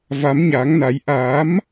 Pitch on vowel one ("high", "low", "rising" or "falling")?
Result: rising